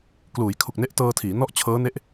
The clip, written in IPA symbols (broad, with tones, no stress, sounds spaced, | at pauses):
k l uː˩˦ j kʰ u˨˩ k̚ n e˦˥ ʔ t ɤː˧ tʰ iː˩˦ n ɔ˥˩ ʔ t͡ɕʰ ɤː˦˥ n e˦˥ ʔ